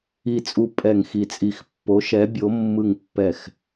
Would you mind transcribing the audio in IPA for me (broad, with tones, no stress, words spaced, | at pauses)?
i˧˩t͡sʼu˧˩ pʼɛ˧˩ŋxi˧˩t͡sʼi˧˩x pːo˨˦ʃɛ˨˦ bʲo˨˦ mːɯ˧˩ŋpːɛ˧˩x